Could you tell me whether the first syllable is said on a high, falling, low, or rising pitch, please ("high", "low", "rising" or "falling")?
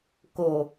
low